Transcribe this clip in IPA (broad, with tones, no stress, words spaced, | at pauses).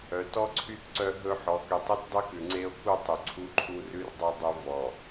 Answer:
œ˨tɔ˦ǀʰy˦t ǀœ˦ ɦɵ˦ ħɔ˨ky˨tˤʉ˦t dˤʉ˦kʉ˨ ŋ͡ǀe˦o̯ku˦ tˤu˨ǀʰu˦ǃʰu˦ rʉ˦rdˤɵ˦ dˤɵ˦ vɔ˨